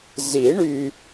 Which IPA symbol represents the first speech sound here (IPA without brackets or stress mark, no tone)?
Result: z